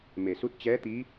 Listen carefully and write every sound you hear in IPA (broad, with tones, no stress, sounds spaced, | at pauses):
m e˩ s u˧˥ t̚ t͡ɕ ɛː˧˥ t̪ i˧˥